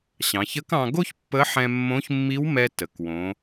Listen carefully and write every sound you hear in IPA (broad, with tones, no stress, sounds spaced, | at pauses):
ɕ ɑ̃˩˧ ç ə˧˥ k ɑ̃˧ ɡ o˥ ç pː ə˧˥ ħ ɛ̃˧ mː õ˧˥ ç mː i˧˥ w m ɛ˧ t ə˩ k w õ˩˧